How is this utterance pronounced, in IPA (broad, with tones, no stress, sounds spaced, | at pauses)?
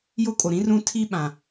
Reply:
j o˦ kʼ o˨ ɾ ĩ˦ r ũ˦ tʰ i˦ ɓ ã˨